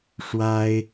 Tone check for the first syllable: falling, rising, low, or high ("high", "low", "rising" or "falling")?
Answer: high